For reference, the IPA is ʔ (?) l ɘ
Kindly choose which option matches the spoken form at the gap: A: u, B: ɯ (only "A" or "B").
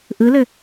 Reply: B